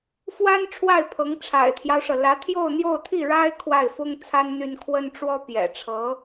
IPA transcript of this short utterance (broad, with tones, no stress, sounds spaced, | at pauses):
f w a˥ n ʈ͡ʂʰ w a˥˩ ɪ̯ pʰ ɤ˧˥ ŋ ʈ͡ʂʰ a̰˨˩ ɪ̯ t̪ʰ j ɑ˦ ʊ̯ ʂ ɤ˩ l ä˧˥ t̪ʰ j o˥˧ ʊ̯ n̪ j o˥˧ ʊ̯ t̪ʰ i˥˩ ɻ a˥ ɪ̯ kʰ w a˥˩ ɪ̯ f ʊ˥ ŋ t͡sʰ a˥ n n̪ y˥ n kʰ w ə˥ n ʈ͡ʂ w ɔ˥ p j ɛ̰˨˩ ʈ͡ʂʰ ɤ˧˥